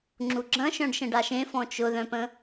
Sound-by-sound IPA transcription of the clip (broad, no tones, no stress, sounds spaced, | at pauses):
ŋ͡ǁ u ɡ͡ǁ ɐ̃ ʃ œ̃ ɖ ʃ ə̃ ɖ a ʃ ẽ f ɔ̃ t͡ʃ ʊ ð œ̃ p ə̃